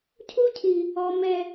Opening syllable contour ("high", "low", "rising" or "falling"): high